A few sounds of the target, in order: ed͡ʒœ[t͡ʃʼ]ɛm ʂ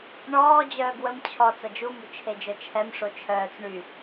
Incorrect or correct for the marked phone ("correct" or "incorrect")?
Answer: incorrect